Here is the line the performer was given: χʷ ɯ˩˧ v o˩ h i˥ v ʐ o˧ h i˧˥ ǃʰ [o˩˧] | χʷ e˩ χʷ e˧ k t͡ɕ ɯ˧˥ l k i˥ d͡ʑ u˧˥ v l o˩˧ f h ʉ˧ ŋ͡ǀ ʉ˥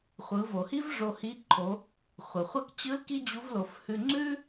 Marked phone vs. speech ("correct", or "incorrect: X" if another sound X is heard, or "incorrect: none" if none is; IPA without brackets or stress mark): correct